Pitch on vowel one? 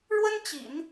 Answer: high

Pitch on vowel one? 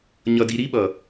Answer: low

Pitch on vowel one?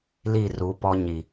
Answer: falling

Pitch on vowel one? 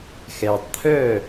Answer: low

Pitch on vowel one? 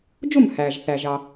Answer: falling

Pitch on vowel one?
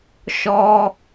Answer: high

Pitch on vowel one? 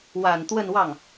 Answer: low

